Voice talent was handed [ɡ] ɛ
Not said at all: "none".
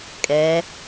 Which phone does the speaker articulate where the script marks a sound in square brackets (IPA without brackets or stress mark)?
kʼ